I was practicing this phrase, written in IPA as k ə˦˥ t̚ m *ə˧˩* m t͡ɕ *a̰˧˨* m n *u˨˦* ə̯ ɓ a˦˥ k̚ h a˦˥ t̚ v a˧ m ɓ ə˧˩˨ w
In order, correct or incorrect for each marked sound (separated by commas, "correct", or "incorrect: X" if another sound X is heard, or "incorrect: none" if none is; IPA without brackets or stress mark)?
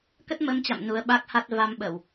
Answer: incorrect: ə˧, correct, correct